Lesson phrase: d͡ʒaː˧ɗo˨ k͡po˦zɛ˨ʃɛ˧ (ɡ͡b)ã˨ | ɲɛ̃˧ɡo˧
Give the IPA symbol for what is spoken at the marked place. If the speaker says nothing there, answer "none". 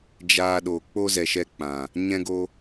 k͡p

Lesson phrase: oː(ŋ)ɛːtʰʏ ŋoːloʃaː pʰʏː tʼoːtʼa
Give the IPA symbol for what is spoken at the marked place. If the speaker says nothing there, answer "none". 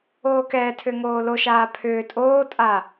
k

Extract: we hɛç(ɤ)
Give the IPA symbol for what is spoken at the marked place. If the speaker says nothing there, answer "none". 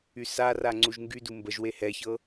ɤ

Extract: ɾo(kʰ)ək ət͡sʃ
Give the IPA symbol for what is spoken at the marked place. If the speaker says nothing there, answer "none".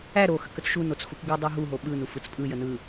x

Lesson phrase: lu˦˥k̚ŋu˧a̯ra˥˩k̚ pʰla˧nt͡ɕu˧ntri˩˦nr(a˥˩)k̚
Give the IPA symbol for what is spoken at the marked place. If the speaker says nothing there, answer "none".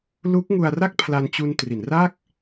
a˥˩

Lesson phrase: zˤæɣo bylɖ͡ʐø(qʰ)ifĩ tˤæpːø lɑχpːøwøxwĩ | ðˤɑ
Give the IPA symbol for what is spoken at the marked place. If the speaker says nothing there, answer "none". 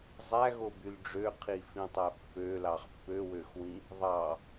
qʰ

